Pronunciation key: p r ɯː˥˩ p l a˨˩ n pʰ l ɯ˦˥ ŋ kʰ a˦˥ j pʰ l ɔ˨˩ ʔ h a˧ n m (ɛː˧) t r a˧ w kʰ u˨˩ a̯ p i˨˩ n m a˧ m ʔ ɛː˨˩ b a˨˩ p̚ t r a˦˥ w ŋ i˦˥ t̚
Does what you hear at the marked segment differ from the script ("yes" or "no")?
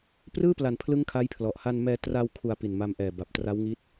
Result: no